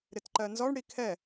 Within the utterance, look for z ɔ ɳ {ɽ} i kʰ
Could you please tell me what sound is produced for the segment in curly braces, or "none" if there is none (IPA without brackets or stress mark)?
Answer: ɽ